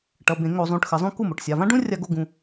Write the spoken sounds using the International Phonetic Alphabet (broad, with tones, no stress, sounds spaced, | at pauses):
ʈ ʌ˩˧˩ b ẽ˧˩˧ ŋ o˧˩˧ zˤ ũ˩˧˩ ʈ x ɘ˧˩˧ zˤ ũ˥ k u˥˩ m o˩˧˩ ʈ sʲ a˩˧˩ v ã˥ ɖ ũ˥ rʲ a˥ ɡ o˥ ɡ ũ˩˧˩